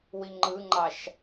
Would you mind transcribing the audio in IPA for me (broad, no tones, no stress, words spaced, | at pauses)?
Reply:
wiŋ͡ǃɯŋ͡ǃɑʃ